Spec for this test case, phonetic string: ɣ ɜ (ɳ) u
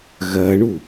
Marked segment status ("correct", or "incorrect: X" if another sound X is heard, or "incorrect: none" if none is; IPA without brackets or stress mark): correct